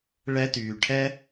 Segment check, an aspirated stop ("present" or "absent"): present